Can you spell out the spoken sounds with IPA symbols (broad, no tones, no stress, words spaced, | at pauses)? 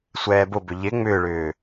sʷɛːbʊbʏ ʎɪ ŋ͡mʏːɭʏː